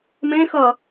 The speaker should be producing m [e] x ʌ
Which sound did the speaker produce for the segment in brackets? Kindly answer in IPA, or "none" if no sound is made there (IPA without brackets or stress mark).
ẽ